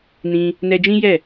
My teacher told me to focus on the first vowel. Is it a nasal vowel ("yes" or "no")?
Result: yes